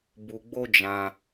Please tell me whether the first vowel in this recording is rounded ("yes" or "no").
yes